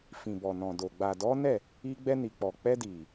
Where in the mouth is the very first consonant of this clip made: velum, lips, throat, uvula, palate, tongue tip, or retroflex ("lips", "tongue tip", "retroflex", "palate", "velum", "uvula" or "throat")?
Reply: lips